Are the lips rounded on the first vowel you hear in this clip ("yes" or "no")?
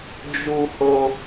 yes